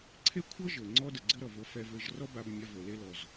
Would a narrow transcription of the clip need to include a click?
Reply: yes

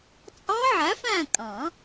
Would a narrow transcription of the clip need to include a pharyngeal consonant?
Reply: yes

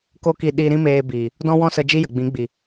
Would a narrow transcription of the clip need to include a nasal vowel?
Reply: yes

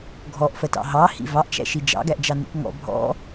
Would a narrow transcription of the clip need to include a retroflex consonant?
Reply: no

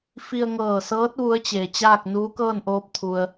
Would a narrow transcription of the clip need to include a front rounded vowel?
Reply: no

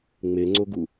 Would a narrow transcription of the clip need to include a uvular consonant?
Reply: no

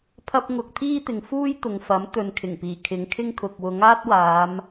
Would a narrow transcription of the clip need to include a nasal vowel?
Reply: no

